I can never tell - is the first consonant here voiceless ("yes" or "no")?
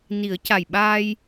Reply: no